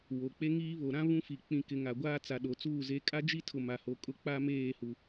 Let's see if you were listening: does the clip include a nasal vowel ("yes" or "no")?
yes